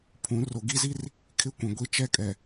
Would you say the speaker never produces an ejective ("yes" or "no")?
no